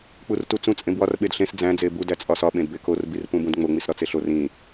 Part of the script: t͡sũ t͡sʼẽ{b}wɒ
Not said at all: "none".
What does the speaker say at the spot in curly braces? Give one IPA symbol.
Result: b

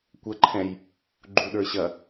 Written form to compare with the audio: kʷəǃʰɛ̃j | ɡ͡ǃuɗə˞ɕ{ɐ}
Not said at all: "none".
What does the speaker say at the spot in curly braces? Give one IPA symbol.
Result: ɐ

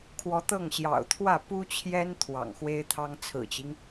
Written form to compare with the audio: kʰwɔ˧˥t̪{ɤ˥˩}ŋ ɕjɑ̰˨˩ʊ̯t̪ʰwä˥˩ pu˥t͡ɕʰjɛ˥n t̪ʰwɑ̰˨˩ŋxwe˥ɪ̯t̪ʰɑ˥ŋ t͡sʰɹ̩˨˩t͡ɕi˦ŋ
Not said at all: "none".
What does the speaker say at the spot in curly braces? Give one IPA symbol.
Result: ɤ˥˩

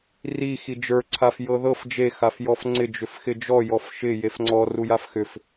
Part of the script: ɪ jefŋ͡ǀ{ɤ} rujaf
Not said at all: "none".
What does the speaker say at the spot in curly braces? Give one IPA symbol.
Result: ɔ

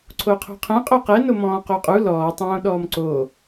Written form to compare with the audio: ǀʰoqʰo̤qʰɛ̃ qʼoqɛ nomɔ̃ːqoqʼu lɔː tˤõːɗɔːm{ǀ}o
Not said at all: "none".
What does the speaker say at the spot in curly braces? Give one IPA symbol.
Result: ǀ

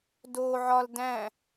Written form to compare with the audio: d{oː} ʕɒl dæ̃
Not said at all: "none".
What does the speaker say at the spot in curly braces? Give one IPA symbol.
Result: oː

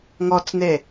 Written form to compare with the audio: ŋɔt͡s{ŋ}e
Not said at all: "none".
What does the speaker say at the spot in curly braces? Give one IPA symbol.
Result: n̪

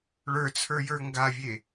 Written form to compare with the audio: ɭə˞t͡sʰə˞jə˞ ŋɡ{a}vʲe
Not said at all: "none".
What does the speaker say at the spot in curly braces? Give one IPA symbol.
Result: a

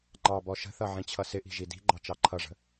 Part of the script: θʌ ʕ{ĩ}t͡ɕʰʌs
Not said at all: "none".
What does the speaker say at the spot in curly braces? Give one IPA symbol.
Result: ĩ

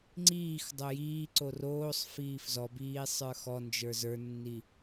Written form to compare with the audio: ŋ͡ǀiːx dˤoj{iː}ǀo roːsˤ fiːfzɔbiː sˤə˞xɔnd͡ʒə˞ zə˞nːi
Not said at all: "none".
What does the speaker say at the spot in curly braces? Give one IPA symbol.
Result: iː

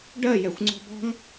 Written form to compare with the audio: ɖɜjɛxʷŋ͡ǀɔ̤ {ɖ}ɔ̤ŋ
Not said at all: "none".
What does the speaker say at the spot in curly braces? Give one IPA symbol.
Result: b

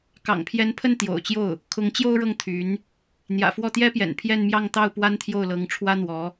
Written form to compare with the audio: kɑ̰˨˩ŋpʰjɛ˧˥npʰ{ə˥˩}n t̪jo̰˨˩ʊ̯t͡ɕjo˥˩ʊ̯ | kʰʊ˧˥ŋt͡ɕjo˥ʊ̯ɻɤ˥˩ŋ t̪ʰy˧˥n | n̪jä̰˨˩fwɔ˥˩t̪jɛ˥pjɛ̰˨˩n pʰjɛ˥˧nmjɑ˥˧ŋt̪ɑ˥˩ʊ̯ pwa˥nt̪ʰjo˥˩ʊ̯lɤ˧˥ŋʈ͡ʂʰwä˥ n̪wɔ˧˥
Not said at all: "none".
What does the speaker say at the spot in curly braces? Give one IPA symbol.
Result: ə˥˩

